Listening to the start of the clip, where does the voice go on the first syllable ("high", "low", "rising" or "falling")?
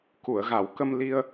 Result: low